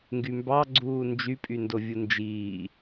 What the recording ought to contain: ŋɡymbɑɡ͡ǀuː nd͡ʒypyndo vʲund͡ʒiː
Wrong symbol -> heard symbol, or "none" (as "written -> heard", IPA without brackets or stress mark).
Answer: p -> pʼ